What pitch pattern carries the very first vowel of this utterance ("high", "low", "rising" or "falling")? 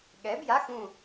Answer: rising